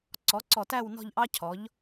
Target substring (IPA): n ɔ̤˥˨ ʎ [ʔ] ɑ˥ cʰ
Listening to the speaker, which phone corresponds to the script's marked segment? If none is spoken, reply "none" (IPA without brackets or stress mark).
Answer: ʔ